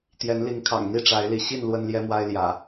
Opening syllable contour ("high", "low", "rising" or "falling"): rising